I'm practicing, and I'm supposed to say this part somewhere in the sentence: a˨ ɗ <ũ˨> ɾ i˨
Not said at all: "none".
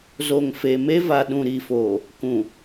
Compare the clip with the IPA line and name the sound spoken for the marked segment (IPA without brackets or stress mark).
ũ˨